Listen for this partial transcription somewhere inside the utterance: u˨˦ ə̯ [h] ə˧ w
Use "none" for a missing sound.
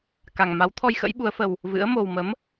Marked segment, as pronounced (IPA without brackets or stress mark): f